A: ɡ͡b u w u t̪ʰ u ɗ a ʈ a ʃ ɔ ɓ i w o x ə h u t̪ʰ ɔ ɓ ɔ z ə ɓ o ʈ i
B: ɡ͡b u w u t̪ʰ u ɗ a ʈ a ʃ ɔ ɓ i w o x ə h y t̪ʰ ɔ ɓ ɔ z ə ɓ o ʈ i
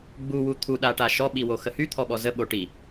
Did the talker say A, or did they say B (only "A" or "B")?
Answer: B